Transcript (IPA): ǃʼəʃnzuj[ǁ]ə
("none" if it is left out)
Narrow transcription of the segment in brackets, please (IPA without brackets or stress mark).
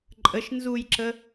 ǁ